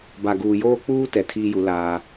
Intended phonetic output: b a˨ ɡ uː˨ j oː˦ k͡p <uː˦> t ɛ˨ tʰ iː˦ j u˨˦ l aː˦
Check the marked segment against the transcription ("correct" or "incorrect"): correct